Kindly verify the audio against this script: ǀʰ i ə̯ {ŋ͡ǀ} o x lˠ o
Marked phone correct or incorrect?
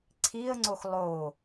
correct